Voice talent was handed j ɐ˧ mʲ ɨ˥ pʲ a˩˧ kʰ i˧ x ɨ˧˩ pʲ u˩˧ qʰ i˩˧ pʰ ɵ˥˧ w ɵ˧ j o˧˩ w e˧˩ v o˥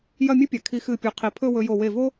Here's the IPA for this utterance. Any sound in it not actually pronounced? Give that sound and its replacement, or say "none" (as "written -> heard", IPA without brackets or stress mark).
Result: ɐ˧ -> ɐ˥˧